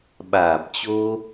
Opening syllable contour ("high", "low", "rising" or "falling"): low